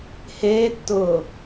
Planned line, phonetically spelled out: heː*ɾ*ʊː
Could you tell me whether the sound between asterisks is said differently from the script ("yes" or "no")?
yes